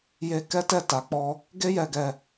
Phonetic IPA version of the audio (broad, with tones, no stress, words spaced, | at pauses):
je˧kɛ˦tɛ˦˨ ta˨˦k͡pɔ˦ | ɡe˦jɛ˧ɡɛ˧